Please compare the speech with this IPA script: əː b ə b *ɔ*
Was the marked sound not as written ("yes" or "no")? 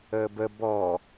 no